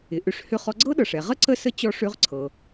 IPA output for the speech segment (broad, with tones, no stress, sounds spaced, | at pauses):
ɪ˩˧ ʔ ʏ˩˧ ʂ h ʏ˧ χ ɔ˧ ɡ͡ǀ ɤ˥ ɗ ɤ˩ ʂ ɛ˩ ʁ ə˥ ǀ ə˥ s ə˥ t͡ɕ ɔ˧ ʂ ø˧˥ ʁ ǀʰ ɤ˩